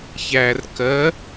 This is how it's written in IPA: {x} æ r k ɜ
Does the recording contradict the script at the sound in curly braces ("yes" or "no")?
yes